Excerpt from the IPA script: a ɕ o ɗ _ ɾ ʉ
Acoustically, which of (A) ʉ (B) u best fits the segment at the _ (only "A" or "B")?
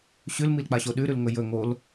A